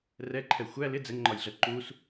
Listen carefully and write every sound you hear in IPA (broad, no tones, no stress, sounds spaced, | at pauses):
r ɛ ǃʰ ɛ xʷ æ l ɪ d͡z ɛ ŋ ŋ͡ǃ ɒ j ɮ ɜ ǃ u s